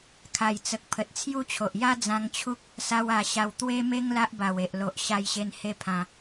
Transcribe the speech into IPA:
kʰ a˨˩ j t͡s ə˨ k̚ pʰ ə˨ t̚ t͡sʰ j u˦ t͡ɕʰ o˨ ʔ j a˦ d͡z ã˧ ŋ t͡ɕʰ u˦ k̚ | s a˧ w a˨˩ ɕ a˨˩ w t̪ w e˦ m e˦ ŋ l a˦ ʔ b a˨˩ w e˨ ʔ l o˨ ʔ ɕ a˧ j ɕ e˧ n h e˦ pʰ ã˧

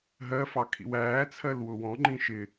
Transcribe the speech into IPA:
ɦ ɜ f ɑ kʰ ḭ w æː t͡sʰ ɜ l w ʊ w ɔ̃ ŋ͡ǃ ĩ ʃ ɪ

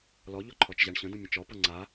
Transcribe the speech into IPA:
l ɔ ʎ ɔ ǃʰ ɔ t͡ʃ ʑ a ɳ ɕ ə̃ d ə̃ mʲ ə̃ t͡ʃ ɔ p ɤ ŋ͡ǀ a

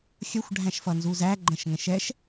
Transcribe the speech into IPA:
xʲ ʌ xʷ ɖʱ æ̃ ʃ f ʌ n z u z æ ɡ͡ǃ ə̃ ʃ ŋ ɛ̃ ʃ ɛ ʃ

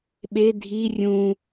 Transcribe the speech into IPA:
ɓ e dʱ i rʲ ũ

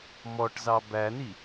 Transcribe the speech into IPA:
m ɔ ʈ z ɑ b æ n i

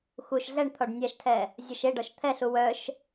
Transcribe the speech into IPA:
x u ʃ ɮ ɛ ɳ t̪ʰ ɔ ɖ nʲ a ʃ tʰ ɛ | zʲ ɒ ʃ e ɖ ɔ ʃ t̪ʰ ɛ ɬ u w œ ʃ

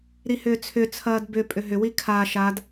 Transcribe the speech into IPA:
ɾ i h ʏː t͡sʰ ʏ t͡sʰ ɐː d b ʏ pʼ ʏ ɦ ʏ w i kʰ a ʃ a d

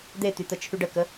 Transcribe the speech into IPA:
d̪ e t̪ y t̪ ə t͡ʃʰ y ɖ ə k ə

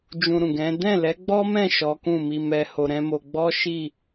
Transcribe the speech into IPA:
d͡ʒ ũ˧ ɾ ũ˨ ɡ ɛ̃˨˦ d ɛ̃˦˨ l ɛ˨˦ ɡ͡b ɔ˦ m ɛ̃˦˨ ʃ ɔ˨˦ k ũ˦˨ m i˧ m ɛ˧ h o˧ ɾ ɛ̃˦ m o˧ ɡ͡b ɔ˦ ʃ i˦˨

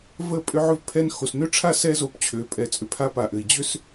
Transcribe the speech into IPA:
v ə˦˨ pʼ ʏ˦ ʕ ʏ˦ v pʰ ɛ˦ n x o˨ s n ø˦ ʈ͡ʂʰ a˦ s ɛ˦ z o˨ p t͡ɕʰ ø˨ pʼ ɛ˨ t͡sʼ ʏ˨ pʰ a˦ p a˨ ʔ ɘ˨ i̯ d͡ʑ ʏ˦ s

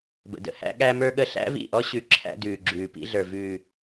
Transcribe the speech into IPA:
b ə̰˨ d ə̰˦ h æ̰˦ ɠ æ˦ m ə˞˦ ɠ ə˦ ɬ æ̰˦ v ḭ˦˨ ʔ ɔ˦ ɕ ʉ˨˦ ǁʰ æ̰˦ d ʉː˨ ɡ͡ǁ ʉː˨ p ḭ˦ ɮ ə˞˨ v ʉː˨

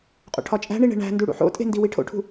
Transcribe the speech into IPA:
qʼ o̰ ʈʰ ɒ t͡ʃʼ æ̤ ɳ i ɳ e̤ ɳ æ̤ n d u ɽ ṵ ħ o̰ tʼ e̤ n d i w i ʈʰ o̰ ʈʰ ṳ

